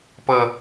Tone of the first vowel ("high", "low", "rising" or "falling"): low